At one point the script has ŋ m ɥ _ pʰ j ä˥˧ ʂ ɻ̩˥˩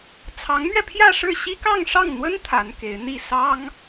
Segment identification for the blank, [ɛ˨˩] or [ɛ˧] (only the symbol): ɛ˧